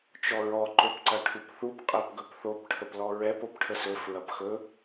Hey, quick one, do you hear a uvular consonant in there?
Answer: yes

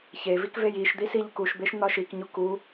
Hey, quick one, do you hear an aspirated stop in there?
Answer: no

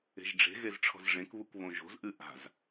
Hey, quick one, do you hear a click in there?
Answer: no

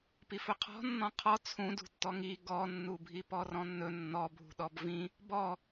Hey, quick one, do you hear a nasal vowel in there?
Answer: yes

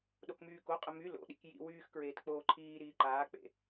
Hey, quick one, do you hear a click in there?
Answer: yes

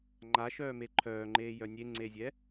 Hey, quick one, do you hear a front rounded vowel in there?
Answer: yes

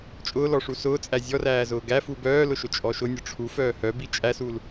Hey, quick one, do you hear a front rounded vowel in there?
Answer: yes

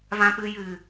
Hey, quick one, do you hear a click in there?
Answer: no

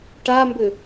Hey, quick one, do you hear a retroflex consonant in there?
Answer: yes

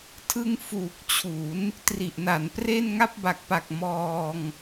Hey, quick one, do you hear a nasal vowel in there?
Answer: no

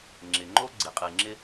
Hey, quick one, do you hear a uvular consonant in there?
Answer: yes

